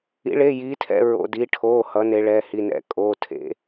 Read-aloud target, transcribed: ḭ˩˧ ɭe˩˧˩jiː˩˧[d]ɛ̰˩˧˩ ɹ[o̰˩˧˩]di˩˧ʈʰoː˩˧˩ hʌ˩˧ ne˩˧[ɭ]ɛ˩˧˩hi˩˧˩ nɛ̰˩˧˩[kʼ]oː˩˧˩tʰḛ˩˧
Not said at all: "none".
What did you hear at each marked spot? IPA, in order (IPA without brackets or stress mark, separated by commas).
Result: tʰ, o̰˩˧˩, ɭ, kʼ